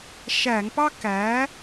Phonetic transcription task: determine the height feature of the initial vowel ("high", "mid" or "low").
low